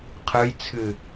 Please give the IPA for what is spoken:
qʰ ɯ j t͡sʰ ɨ

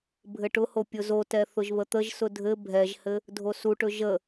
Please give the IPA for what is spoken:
bʱ ɘ ʈ ʊ h o pʲ ʊ z o t ɛ θ ʊ ʒ β ə t̪ ə ʒ s ʊ dʱ ɘ bʱ ɛ ʒ h ɘ | dʱ o s u ʈ ɵ ʒ ə

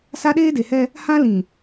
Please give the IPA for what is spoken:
s a˦ ɗ eː˦ d e˨ h ɛ˦ | h ã˦ l ĩ˨

